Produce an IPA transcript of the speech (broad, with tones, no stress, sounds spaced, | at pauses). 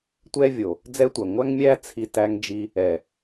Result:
tʷ ɛ˦ vʲ o˨ | d͡z ɛ˦ tʷ æ˨ ŋʷ æ˦ ŋ mʲ æ˦ t͡sʰ i˧ t æ˧ ŋ d͡ʒ i˧ | ɛ˨